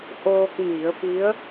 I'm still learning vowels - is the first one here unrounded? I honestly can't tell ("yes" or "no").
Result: no